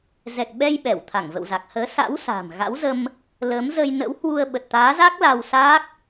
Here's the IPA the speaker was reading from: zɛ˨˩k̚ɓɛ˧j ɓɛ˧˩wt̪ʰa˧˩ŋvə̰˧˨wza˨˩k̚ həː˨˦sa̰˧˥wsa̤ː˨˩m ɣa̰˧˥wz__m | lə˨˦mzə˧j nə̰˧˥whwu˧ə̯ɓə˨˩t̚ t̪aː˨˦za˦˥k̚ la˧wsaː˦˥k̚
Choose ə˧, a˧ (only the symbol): ə˧